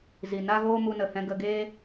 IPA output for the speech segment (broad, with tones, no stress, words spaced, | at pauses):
zi˨na˦ ɣoː˦mu˧nə˨hɛ̃˧ ɡə˧ɡeː˦